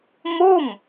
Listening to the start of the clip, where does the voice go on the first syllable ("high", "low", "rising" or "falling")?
falling